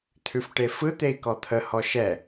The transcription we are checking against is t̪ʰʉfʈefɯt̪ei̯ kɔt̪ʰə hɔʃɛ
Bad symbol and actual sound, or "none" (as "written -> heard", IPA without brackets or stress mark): none